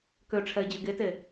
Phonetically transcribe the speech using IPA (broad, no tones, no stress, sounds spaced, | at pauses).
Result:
k ø ʈ͡ʂʰ ɛ ɪ̯ d͡ʑ y ɡ e t e